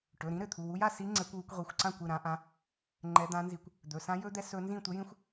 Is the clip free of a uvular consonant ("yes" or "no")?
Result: no